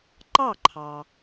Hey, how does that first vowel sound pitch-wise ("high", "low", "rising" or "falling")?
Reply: falling